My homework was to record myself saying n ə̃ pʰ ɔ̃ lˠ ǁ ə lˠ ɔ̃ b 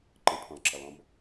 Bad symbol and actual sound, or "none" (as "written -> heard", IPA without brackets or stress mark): n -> ǃ